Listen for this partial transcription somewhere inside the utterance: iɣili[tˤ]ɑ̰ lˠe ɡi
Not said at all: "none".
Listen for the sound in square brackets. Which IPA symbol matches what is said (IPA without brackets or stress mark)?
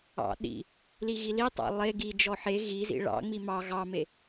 tˤ